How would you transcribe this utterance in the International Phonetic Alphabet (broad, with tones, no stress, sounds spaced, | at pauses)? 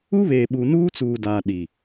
u˦ β eː˨ ɓ u˨ n uː˦ t͡s uː˨ d aː˨ ɗ i˨